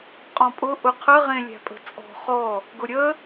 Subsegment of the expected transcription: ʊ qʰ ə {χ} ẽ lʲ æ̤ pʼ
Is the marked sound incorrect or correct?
incorrect